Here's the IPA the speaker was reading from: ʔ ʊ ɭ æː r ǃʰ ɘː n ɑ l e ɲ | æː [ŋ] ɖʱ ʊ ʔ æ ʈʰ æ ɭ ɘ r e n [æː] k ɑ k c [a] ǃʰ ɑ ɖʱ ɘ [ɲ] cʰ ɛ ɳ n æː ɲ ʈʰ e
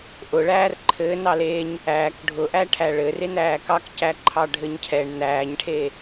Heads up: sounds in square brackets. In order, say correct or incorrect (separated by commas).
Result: incorrect, correct, incorrect, correct